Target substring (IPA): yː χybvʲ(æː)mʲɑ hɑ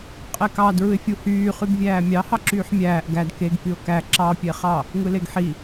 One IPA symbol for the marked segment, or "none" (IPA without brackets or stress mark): æː